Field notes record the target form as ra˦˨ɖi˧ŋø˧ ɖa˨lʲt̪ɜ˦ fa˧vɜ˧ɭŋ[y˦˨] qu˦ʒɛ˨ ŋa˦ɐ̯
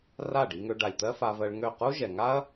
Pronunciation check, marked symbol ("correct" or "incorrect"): incorrect